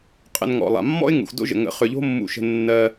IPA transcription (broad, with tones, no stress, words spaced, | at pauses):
qʼə̰˨n ŋɔ̰˩lˠa̰˩mːɔ̰˥ɪ̯ ŋṵ˩xdo̰˦ʒə̰˩ ŋə̰˨ χʏ˨ʎo̤˥mːṵ˨ʃə̤˨ nːɜ˨